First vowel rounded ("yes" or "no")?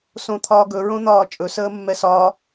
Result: yes